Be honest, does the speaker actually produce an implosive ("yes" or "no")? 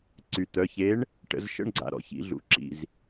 no